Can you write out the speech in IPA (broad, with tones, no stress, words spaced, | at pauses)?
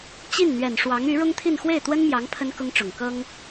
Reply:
t͡ɕi˥˩nn̪ɥɛ˨˩n ʂwɑ˧˥ŋy˧˥ɻʊ˥ŋt̪ʰi˥˧n xwe˥˩ɪ̯t̪wə˥nmjɑ˧˥ŋ pʰə˥nkʊ˥ŋʈ͡ʂʊ˨˩ŋ kɤ˥ŋ